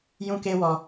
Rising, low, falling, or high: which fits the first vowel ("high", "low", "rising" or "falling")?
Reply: high